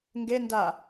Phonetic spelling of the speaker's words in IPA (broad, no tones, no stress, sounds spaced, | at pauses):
ŋ ɡ e n d a